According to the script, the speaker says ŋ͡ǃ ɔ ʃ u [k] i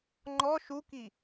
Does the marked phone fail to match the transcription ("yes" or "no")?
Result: no